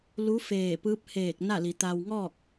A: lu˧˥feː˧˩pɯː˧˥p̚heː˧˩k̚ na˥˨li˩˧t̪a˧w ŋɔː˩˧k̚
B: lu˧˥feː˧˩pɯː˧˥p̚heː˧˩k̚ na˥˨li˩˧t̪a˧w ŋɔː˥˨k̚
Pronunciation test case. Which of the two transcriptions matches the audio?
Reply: B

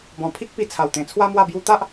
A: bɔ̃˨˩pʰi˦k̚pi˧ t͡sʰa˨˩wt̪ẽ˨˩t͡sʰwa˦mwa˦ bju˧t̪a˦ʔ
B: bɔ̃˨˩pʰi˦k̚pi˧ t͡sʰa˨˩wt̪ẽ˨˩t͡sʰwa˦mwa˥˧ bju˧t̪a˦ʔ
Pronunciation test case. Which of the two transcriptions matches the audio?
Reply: B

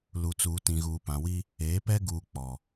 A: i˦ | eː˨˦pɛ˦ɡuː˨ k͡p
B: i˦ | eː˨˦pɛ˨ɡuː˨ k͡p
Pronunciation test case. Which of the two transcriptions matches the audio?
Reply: A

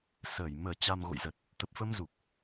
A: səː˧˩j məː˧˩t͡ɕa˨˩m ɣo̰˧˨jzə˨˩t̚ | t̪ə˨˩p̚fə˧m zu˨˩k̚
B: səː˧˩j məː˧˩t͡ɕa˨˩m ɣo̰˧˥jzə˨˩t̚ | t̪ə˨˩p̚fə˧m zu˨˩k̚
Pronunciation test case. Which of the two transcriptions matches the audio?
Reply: A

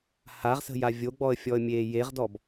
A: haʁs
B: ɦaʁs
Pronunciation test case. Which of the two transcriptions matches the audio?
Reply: A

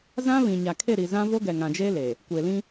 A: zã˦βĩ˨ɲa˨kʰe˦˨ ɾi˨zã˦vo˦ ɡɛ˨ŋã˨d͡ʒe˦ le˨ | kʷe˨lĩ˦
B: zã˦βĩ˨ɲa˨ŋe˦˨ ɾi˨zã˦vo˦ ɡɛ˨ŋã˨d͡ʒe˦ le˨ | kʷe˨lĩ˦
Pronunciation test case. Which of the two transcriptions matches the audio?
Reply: A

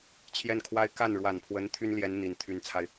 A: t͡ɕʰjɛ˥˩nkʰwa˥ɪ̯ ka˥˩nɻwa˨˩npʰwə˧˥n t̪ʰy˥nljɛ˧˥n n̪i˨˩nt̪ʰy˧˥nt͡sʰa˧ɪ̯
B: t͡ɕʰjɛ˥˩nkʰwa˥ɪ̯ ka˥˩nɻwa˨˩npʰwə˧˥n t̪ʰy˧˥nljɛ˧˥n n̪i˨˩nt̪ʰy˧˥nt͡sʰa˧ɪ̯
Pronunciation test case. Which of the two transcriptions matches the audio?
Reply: A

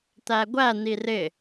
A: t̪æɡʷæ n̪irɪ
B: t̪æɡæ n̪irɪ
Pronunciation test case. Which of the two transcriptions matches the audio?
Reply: A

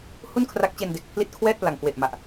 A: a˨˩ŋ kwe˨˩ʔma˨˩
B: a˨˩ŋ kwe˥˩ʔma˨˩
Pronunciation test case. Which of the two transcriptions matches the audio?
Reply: A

